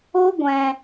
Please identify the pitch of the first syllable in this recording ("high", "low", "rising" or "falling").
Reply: high